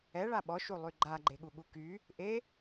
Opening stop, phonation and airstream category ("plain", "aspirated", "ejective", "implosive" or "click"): implosive